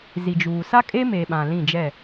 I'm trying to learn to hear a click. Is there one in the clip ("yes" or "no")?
no